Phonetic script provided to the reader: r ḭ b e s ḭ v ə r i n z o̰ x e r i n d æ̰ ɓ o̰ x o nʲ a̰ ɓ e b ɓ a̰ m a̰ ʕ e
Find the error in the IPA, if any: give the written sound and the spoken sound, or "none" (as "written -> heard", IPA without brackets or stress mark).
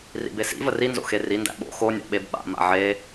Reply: none